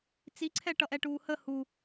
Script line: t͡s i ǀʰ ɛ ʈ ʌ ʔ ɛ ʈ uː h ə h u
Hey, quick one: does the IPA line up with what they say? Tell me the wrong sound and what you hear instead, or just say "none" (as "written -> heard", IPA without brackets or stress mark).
none